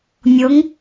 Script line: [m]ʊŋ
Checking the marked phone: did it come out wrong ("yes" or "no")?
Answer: yes